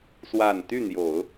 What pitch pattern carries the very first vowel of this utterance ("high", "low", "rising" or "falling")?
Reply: low